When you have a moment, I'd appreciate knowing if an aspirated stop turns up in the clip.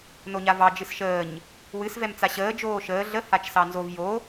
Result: no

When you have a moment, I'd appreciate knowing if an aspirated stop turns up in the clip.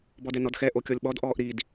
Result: no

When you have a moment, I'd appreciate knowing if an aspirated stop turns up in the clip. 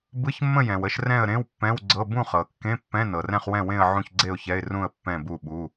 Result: no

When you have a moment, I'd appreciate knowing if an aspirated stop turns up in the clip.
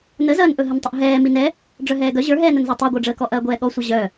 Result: no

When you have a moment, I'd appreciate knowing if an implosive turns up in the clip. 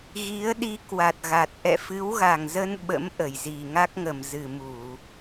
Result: yes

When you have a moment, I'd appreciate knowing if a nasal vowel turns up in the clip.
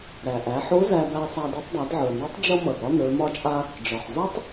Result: no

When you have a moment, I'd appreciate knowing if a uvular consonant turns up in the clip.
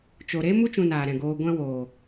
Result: no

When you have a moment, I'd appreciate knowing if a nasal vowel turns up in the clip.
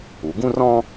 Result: yes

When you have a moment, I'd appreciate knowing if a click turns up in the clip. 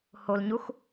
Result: no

